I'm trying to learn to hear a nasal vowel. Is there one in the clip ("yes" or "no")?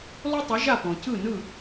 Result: yes